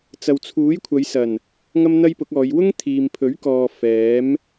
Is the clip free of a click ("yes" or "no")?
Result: yes